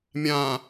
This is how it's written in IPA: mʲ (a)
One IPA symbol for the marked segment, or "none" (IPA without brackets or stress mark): ã